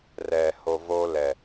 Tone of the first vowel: low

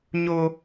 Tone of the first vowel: high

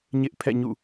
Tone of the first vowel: high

